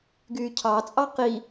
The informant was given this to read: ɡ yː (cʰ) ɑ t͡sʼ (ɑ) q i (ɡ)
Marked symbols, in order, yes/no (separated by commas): yes, yes, no